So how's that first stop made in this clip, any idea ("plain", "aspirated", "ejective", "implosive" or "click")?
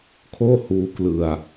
aspirated